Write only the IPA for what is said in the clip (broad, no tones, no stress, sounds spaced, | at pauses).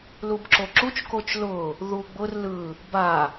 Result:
l u b ǁ o ǁ u t͡ʃ k o t͡ʃ l ʊ | ð u ɡ͡b ʊ r l ɯ | b a